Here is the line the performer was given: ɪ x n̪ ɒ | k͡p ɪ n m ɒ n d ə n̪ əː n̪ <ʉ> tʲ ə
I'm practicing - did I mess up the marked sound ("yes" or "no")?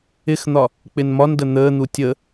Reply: yes